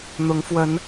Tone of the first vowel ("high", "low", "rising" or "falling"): rising